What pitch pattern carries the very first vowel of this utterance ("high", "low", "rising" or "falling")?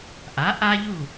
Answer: rising